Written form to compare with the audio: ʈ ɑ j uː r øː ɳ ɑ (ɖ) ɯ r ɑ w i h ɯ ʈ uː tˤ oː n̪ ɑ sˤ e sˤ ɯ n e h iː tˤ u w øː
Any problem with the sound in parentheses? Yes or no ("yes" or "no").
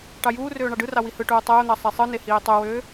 no